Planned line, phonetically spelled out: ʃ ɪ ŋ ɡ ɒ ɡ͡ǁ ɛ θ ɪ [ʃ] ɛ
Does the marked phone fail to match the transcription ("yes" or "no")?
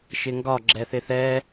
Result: yes